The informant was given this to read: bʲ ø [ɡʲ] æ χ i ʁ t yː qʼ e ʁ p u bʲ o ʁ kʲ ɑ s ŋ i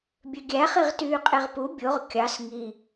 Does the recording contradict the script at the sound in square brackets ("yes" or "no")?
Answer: no